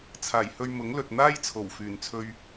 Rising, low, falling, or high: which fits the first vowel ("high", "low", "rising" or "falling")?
low